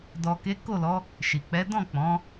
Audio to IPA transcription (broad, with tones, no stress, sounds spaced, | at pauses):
d ɔ˨ k e˨˦ k o˦˨ l ɔ˨˦ | ʃ i˨ k͡p ɛ˨˦ d ɔ̃˦˨ k͡p ɔ̃˨˦